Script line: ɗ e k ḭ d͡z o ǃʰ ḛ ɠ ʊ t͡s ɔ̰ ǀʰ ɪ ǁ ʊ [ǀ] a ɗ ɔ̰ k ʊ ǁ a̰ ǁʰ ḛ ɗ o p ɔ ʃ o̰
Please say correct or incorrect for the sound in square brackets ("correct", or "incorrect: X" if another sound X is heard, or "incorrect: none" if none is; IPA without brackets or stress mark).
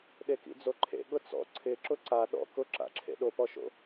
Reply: correct